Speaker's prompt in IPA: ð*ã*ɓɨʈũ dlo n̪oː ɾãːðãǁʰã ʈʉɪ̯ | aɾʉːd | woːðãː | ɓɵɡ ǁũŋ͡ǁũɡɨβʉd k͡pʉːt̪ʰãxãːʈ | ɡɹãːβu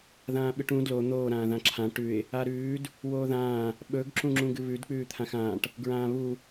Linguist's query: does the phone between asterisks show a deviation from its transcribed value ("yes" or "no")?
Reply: yes